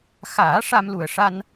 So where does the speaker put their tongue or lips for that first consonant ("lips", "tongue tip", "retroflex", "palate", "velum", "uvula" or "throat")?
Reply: velum